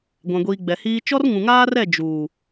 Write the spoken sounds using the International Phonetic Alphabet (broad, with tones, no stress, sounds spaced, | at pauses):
ɡʷ ã˨ ɡʷ iː˨ ɡ͡b ɛ˨ h iː˦ t͡ʃ ɔ˦ r ŋ ũ˨ ŋ aː˦ r ɛ˦˨ d͡ʒ uː˨